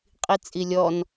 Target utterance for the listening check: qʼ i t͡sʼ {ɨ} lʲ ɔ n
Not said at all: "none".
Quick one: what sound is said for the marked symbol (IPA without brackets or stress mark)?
i